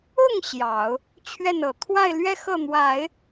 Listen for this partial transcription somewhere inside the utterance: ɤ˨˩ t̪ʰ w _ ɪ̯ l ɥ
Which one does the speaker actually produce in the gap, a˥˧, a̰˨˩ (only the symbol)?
a˥˧